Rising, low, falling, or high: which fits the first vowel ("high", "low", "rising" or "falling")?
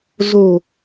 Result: low